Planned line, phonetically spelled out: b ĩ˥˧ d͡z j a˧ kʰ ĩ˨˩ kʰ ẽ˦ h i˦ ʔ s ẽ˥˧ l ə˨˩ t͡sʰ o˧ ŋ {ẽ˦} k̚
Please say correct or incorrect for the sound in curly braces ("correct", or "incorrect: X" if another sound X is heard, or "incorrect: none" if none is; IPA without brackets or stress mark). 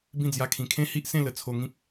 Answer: incorrect: ĩ˦